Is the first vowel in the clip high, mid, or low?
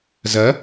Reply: low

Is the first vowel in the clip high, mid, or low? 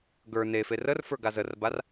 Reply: mid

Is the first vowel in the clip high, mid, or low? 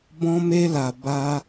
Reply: mid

